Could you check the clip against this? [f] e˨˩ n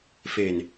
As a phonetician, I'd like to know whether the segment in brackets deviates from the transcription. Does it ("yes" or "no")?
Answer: no